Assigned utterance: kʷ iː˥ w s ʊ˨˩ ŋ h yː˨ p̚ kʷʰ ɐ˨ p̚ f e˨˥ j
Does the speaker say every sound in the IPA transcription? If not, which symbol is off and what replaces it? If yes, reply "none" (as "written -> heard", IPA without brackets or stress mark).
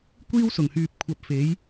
none